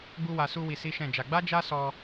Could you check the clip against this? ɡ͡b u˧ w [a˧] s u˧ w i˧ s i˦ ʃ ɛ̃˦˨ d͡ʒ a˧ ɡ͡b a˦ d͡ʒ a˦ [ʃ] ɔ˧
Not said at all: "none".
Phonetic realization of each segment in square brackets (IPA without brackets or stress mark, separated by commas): a˨, s